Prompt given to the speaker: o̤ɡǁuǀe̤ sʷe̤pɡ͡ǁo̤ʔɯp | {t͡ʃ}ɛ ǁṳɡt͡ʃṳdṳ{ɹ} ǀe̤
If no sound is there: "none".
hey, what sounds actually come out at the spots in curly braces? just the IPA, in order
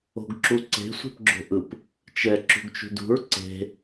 t͡ʃ, ɹ

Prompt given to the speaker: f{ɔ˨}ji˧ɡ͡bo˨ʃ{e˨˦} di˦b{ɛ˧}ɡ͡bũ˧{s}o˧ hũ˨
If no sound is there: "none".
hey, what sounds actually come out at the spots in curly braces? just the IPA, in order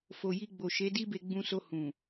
o˨, e˨˦, e˧, s

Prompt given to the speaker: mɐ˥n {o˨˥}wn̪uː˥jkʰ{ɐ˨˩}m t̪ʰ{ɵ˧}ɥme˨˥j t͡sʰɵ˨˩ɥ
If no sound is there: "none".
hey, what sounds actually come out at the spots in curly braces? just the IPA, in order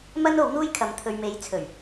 o˨˥, ɐ˨˧, ɵ˨

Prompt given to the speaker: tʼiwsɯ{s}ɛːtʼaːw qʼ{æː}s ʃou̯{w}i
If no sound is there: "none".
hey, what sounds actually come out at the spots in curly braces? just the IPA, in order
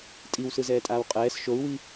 z, ɛː, w

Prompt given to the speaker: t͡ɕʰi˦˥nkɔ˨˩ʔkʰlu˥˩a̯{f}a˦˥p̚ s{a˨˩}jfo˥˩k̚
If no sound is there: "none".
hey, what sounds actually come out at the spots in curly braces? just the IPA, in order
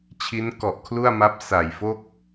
m, a˨˩

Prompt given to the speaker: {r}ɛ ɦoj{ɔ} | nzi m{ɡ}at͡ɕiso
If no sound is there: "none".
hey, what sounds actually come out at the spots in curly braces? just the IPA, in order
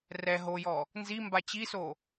r, ɔ, b

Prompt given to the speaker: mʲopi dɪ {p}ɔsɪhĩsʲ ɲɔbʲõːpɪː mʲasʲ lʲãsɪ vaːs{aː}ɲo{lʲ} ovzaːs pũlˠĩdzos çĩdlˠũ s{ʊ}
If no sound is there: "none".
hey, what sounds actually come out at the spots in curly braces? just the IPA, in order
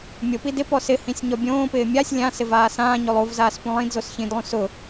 p, ãː, lˠ, ʊ

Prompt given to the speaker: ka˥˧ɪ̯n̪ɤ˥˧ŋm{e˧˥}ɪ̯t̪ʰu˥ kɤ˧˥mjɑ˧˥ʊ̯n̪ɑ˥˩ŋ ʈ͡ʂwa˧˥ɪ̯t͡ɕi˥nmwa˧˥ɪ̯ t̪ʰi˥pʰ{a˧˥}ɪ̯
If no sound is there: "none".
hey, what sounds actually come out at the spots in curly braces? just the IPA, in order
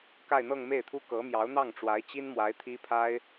e˥˩, a˥

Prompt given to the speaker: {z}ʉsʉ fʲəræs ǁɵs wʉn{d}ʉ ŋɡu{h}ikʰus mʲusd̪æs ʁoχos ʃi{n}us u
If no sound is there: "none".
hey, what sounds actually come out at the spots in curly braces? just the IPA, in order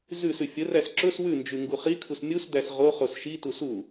z, d͡ʒ, χ, t

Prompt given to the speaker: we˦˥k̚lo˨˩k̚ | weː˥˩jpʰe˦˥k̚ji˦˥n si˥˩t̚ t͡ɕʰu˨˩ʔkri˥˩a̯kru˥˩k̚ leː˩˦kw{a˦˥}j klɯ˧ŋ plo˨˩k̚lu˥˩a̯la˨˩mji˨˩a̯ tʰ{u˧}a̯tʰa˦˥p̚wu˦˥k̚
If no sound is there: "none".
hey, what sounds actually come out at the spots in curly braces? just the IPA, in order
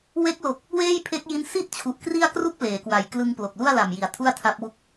a˨˩, u˥˩

